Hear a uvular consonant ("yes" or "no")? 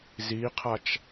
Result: yes